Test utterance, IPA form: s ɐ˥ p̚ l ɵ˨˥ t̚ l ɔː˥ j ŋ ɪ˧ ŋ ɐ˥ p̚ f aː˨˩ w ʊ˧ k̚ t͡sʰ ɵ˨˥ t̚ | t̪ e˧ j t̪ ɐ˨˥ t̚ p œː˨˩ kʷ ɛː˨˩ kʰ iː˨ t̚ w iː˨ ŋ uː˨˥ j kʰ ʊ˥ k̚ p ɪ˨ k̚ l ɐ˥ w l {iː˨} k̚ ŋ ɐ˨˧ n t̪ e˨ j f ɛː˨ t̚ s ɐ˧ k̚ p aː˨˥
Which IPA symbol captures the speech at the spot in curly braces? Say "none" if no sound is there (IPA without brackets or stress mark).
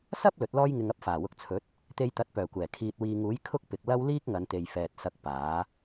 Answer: iː˥